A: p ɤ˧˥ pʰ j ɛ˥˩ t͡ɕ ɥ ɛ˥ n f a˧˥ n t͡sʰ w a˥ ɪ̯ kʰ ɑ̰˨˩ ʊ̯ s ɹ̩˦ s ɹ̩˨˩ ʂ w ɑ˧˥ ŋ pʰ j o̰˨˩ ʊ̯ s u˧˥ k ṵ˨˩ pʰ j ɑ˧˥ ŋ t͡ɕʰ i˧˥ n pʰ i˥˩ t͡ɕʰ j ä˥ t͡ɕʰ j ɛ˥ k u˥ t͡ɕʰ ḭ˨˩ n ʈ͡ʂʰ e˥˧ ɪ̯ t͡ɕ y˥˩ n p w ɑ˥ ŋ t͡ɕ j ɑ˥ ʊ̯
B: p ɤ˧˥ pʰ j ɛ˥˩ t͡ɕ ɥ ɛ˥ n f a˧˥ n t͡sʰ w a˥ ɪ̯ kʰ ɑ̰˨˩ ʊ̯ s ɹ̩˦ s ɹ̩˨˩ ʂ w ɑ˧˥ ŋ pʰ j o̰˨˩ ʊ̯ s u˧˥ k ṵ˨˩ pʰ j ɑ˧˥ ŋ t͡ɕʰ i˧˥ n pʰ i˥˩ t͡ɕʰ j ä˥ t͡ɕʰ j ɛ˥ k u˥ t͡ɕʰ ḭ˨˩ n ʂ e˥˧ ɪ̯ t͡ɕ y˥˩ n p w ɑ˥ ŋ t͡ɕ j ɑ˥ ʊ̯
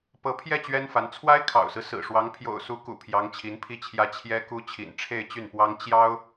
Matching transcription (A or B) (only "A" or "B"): A